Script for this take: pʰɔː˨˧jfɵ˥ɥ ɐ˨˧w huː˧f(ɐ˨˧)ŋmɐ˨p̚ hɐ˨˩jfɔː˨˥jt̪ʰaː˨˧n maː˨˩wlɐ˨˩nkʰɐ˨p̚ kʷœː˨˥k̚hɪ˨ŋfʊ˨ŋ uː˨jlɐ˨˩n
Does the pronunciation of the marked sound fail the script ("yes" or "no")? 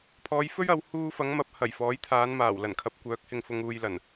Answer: no